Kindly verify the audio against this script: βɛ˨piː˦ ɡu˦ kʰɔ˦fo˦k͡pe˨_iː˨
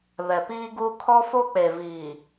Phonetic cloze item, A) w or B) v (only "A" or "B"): B